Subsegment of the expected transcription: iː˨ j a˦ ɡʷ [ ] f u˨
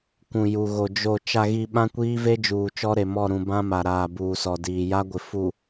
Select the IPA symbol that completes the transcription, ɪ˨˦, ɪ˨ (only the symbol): ɪ˨